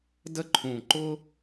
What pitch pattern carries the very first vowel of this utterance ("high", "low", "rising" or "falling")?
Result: high